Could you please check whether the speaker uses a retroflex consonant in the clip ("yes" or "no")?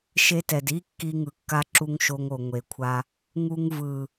no